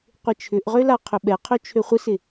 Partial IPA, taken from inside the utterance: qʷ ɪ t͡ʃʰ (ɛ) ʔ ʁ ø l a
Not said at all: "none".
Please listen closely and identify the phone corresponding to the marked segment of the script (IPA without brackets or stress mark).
ʏ